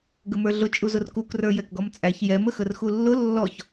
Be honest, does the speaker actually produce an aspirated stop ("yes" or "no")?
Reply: no